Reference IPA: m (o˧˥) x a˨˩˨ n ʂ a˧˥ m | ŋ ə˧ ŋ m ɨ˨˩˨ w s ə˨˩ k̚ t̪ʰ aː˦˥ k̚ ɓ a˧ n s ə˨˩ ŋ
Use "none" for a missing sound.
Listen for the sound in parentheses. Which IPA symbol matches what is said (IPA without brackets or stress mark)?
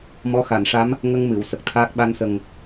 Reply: ɔ˧˥